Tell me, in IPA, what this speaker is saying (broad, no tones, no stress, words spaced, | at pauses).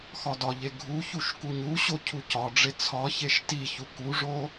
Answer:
xɒdɒʎe ɡʱu çuʃkuɲuɕo cʰucɒɖ͡ʐe t͡sʰɒçeʃ tiçu kuʐo